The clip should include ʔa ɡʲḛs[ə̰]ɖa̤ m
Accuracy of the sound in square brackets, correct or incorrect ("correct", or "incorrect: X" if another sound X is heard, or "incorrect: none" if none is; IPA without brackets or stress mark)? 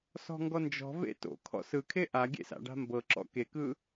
incorrect: a̰